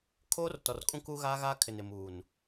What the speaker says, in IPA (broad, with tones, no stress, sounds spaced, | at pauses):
kʰ oː˦ r t ɔ˨ r kʼ ũ˦ k uː˦ ɣ aː˦ ɣ aː˦ kʰ ɪ˨ n ɪ˨ m uː˨ n